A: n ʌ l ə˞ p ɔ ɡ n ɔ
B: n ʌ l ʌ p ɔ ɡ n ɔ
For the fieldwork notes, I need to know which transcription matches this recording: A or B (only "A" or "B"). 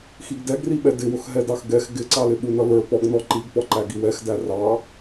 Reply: A